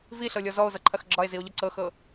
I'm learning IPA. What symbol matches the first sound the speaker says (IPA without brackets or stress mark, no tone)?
v